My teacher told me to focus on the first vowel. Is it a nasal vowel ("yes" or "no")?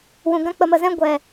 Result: yes